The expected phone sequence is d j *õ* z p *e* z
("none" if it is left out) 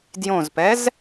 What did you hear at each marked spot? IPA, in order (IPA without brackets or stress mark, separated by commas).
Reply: õ, ɛ